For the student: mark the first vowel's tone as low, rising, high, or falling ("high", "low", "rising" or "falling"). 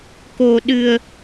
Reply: low